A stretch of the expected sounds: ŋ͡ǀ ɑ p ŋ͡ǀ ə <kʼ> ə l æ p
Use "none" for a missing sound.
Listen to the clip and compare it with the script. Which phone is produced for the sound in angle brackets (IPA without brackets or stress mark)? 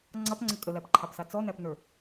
kʼ